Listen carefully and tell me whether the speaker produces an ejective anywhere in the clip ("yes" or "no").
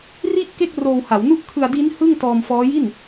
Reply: no